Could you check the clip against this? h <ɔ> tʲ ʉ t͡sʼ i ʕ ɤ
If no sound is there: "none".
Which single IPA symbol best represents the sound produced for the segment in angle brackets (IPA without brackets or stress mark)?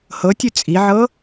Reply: ɤ